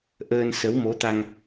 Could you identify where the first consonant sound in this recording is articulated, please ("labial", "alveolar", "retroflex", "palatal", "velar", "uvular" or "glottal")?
glottal